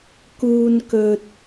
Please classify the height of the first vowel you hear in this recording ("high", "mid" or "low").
high